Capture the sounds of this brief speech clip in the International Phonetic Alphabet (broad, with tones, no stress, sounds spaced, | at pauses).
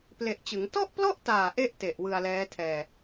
p l e˨˩ ʔ t͡ɕ ɯ˩˦ ŋ t ɔ˥˩ ʔ p l ɔ˥˩ ʔ t aː˨˩ ʔ e˥˩ ʔ t e˨˩ ʔ w ɯ˧ a̯ l ɛː˦˥ tʰ ɛː˧